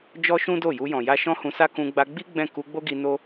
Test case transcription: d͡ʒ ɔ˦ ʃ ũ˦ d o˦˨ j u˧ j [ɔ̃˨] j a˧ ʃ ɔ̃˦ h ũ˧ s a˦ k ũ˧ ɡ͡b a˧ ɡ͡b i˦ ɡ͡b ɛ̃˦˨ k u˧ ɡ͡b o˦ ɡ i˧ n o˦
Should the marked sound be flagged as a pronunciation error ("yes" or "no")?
no